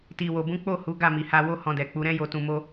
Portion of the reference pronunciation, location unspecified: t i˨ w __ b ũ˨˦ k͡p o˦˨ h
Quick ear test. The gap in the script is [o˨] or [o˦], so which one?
o˨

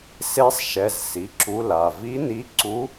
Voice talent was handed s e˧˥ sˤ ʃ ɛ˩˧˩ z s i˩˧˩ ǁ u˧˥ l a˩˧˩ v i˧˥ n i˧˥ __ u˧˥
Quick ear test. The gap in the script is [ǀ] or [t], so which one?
ǀ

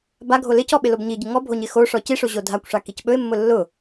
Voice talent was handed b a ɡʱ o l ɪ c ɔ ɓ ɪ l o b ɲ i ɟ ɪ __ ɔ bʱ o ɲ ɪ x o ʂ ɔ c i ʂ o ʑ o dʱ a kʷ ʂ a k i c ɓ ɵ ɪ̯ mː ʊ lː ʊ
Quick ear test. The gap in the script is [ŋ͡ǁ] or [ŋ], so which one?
ŋ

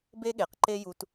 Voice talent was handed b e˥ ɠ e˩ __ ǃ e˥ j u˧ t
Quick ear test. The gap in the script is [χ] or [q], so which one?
q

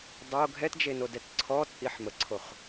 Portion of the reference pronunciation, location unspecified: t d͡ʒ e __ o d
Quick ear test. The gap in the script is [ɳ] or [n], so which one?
n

